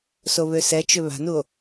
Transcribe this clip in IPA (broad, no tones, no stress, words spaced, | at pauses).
soβøsɛt͡ʃʏ βa̤nuo̯